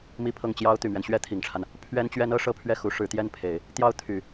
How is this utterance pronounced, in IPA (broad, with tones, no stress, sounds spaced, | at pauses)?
m i˥˧ pʰ ɤ˥˩ ŋ t͡ɕ j ɑ˥ ʊ̯ t̪ y˨˩ m ɥ ɛ˦ n ɕ ɥ ɛ˥ t̪ʰ i˨˩ ŋ ʈ͡ʂʰ a˦ n | pʰ ɥ ɛ˥ n t͡ɕ ɥ ɛ˥ n ɤ˥ ʂ ɤ˥˧ pʰ ɥ ɛ˥˩ x u˧˥ ʂ ɻ̩˧˥ t̪ j ɛ˥˩ n pʰ e˨˩˦ ɪ̯ | t̪ j ɑ˥˩ ʊ̯ t̪ʰ y˨˩˦